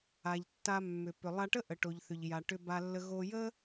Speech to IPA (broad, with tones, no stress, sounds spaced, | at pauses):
a˩ ʎ tː a˧ mː ʏ˩ p ʏ˩ lˠ a˧ ʈ ə˥ ʔ ə˩ ʈ o˩ ʎ θ ʏ˩ ʎ j a˩ ʈ ʏ˧ b a˧ lː ə˧ ɣ o˧ j ə˥